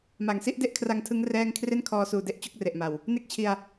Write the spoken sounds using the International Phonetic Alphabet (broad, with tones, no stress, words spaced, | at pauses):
ma˩˦ŋ si˥˩ʔde˥˩ʔkʰra˧ŋtʰɯ˦˥ŋ rɛː˥˩ŋ kʰre˥˩nkʰɔː˧suː˨˩de˥˩ʔ t͡ɕo˦˥k̚re˨˩ʔma˨˩w | ne˥˩k̚t͡ɕʰi˧a̯